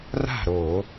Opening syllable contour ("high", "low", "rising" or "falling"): falling